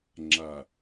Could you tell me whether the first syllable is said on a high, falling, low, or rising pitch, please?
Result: low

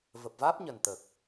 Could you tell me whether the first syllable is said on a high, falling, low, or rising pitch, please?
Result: low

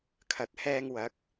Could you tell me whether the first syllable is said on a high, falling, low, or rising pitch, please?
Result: low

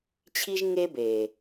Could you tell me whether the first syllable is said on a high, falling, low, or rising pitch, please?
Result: high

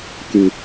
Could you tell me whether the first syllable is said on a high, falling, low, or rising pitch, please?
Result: low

